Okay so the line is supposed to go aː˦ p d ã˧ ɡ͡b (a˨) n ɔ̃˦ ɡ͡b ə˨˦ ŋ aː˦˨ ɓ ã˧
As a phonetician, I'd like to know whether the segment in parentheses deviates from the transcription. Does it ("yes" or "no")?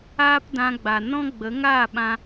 no